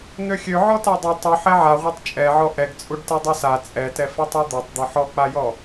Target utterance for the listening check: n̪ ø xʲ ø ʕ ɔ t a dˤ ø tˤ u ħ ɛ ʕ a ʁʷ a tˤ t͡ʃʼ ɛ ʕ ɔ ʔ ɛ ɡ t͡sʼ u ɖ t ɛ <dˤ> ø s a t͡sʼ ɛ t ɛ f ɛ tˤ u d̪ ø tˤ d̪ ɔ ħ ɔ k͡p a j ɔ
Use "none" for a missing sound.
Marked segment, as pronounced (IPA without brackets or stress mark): dˤ